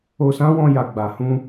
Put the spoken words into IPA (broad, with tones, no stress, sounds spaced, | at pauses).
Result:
o˧ s ã˦ w ɔ̃˧ j a˨ ɡ͡b a˨ h ũ˧